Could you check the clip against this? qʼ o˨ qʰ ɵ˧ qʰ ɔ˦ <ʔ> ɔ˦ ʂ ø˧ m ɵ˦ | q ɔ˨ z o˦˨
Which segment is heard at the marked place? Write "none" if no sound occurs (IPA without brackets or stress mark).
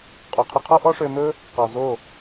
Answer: ʔ